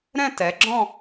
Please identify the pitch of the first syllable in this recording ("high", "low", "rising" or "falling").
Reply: falling